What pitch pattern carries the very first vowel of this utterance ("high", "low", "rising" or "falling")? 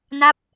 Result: falling